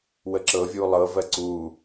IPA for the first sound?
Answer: w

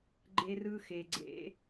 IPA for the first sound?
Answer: ɡ͡ǃ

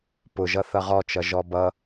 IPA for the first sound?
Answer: p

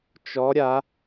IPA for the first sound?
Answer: t͡ʃ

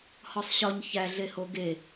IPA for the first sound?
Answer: h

